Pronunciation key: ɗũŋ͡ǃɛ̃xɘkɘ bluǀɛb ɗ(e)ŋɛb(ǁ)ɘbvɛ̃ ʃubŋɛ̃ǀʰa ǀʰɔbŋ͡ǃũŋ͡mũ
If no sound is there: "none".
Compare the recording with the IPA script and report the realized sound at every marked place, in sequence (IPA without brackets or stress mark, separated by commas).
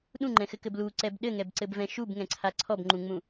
ɘ, ǀ